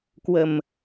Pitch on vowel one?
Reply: low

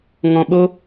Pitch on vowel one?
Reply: low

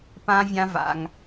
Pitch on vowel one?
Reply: high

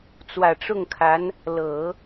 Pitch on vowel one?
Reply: low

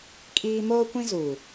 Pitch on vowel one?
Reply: high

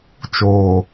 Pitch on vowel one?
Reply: low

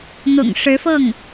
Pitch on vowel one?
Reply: low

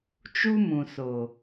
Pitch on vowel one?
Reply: high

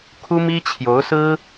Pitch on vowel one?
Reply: high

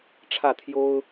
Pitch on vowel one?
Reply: falling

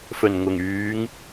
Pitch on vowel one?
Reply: low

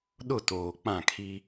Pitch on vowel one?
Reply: falling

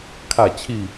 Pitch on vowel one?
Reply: falling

